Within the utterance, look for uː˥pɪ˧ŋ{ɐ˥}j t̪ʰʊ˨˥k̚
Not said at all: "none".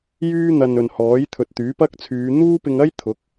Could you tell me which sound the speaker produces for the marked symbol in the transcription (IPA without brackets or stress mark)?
ɐ˥